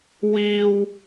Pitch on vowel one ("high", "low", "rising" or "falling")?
high